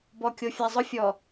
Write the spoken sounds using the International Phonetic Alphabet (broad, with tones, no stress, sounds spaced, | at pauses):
b ɔ˨ kʲ o˨ fʲ a˨ zˤ ʊ˦ fʲ ɔ˨